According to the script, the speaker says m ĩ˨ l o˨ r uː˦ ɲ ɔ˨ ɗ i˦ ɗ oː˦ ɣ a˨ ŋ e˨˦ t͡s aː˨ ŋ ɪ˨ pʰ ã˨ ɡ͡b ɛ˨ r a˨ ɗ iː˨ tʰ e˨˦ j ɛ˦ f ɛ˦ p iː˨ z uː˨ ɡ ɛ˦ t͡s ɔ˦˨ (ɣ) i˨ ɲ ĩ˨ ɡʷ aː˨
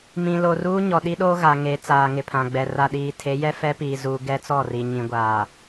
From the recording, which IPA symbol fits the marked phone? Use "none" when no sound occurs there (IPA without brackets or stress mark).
r